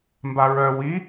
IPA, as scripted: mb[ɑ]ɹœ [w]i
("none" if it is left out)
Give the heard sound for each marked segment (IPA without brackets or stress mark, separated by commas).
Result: a, w